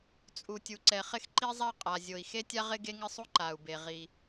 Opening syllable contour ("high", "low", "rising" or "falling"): low